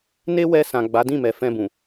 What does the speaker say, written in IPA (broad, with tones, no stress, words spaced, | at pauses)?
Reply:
ne˦wɛ˧ sã˨ɡ͡ba˨˦dĩ˦˨mɛ˨ fɛ̃˧ bũ˨